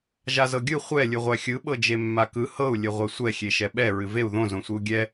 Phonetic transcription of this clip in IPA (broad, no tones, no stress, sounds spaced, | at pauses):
ʒ a z ɤ ɡʲ ɯ χʷ ɛ lʲ ɯ ʁʷ æ xʲ ɯ ɓ ɤ d͡ʒ e mː a k ɯ h ɤ u̯ lʲ ə ʁʷ ɛ sʷ ɛ xʲ e ʃ ɛ ɓ ɛ ɹ ɨ v e u̯ ð õ z õ sʷ ɨ u̯ ɡʲ ɛ